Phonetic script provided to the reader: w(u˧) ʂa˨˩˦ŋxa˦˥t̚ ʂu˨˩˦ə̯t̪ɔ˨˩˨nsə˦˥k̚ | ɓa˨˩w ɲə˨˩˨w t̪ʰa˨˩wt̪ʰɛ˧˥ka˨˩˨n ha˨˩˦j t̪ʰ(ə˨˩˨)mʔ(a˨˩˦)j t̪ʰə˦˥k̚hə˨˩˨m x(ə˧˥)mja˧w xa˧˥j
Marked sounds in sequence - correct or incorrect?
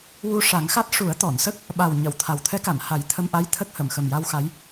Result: correct, incorrect, incorrect, incorrect

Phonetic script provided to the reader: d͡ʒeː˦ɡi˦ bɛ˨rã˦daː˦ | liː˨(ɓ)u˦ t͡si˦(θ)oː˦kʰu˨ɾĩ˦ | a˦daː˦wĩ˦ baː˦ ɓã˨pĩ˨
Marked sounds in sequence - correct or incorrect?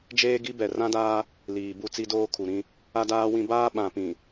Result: incorrect, incorrect

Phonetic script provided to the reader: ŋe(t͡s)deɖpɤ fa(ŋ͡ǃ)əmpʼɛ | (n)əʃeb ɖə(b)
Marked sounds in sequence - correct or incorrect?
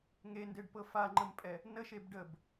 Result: incorrect, correct, correct, correct

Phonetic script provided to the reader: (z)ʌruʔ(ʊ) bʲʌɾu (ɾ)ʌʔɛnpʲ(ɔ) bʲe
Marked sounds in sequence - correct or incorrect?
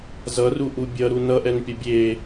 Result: correct, incorrect, incorrect, incorrect

